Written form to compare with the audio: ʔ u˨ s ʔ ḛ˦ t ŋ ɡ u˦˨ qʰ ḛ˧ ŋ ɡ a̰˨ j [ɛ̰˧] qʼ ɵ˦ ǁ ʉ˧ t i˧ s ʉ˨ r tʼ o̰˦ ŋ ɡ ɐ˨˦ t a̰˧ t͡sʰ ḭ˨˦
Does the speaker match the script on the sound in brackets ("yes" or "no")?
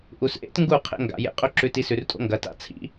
no